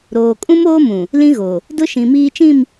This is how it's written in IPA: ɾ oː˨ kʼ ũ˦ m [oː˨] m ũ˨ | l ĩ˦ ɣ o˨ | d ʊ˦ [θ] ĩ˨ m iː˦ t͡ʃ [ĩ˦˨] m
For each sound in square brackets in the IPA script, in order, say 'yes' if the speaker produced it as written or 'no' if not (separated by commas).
no, no, yes